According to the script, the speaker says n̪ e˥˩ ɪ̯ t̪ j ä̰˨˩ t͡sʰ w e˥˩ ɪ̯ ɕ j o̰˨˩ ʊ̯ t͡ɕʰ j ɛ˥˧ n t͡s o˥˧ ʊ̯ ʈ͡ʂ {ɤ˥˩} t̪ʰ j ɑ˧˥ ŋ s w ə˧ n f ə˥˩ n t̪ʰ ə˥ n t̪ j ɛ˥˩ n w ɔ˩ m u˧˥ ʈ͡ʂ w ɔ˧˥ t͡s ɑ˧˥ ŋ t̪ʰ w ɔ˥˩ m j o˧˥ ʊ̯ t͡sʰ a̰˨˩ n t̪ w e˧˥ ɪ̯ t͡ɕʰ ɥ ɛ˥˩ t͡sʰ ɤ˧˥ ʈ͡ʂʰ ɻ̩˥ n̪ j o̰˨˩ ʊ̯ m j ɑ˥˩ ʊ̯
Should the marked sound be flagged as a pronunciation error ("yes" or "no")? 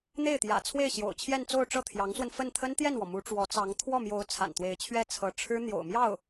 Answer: no